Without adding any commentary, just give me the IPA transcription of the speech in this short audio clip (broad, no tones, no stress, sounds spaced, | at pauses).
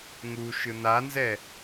ŋ u ʃ ɯ n a n z ɛ